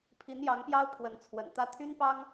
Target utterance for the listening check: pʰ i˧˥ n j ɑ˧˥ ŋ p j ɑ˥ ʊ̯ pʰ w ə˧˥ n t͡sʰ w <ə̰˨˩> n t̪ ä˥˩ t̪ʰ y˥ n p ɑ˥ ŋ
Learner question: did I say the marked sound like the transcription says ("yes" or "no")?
yes